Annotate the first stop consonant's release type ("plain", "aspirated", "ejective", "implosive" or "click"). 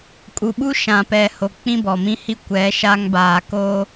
ejective